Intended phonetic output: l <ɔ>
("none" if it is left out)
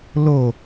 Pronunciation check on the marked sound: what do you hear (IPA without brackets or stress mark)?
o